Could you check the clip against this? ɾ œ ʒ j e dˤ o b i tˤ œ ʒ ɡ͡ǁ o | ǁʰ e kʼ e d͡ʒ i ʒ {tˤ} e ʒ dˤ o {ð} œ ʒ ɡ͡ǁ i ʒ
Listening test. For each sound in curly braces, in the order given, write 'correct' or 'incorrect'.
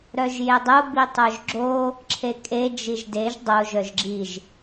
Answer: incorrect, incorrect

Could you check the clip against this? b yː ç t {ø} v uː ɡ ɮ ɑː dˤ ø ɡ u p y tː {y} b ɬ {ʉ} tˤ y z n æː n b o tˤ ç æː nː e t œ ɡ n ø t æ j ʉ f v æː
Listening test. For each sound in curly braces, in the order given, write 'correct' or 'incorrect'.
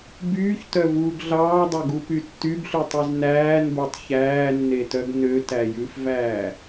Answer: incorrect, correct, correct

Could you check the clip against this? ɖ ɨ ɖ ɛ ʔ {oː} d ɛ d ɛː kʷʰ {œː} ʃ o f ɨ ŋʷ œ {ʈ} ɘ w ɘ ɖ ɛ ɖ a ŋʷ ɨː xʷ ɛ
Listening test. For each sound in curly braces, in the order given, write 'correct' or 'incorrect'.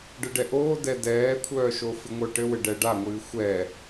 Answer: correct, correct, correct

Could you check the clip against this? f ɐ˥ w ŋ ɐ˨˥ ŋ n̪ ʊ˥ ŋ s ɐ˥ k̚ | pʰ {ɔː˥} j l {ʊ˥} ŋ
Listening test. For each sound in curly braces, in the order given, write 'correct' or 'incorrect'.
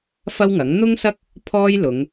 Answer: correct, incorrect

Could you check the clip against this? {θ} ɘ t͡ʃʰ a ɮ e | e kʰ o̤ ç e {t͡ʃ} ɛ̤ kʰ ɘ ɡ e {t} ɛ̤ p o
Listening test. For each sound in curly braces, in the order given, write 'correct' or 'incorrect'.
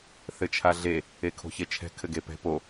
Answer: correct, incorrect, incorrect

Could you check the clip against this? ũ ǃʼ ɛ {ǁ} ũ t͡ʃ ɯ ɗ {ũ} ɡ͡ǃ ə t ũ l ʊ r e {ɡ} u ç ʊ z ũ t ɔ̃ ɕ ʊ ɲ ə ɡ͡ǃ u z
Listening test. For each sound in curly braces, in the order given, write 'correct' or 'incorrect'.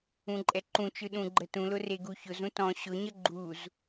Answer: incorrect, correct, correct

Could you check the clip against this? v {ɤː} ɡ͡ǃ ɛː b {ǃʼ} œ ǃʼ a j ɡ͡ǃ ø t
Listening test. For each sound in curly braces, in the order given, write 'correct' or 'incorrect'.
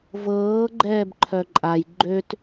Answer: correct, incorrect

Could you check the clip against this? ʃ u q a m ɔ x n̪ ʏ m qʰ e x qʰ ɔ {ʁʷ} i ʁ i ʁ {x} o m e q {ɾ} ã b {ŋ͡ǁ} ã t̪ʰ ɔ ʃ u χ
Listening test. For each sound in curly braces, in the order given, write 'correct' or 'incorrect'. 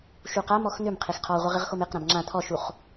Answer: correct, correct, correct, correct

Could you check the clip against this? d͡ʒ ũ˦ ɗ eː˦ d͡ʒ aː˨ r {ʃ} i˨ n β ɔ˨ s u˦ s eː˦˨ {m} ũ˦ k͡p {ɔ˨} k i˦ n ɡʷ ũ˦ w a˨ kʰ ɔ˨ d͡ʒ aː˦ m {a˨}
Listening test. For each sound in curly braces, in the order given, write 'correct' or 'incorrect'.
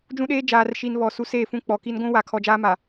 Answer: correct, incorrect, correct, correct

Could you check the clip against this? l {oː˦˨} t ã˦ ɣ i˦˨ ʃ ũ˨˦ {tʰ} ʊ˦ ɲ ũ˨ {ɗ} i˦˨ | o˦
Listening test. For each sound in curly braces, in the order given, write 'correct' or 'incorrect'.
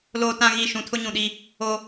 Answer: incorrect, correct, correct

